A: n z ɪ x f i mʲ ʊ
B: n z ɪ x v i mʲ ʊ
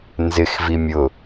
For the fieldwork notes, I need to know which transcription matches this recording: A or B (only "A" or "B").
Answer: B